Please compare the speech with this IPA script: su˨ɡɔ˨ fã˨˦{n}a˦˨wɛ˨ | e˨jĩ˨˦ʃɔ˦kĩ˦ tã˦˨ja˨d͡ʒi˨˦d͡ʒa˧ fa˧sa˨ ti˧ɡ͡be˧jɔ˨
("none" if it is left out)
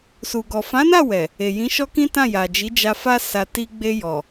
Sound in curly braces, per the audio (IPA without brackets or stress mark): n